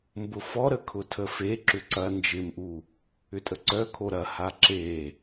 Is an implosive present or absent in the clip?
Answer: absent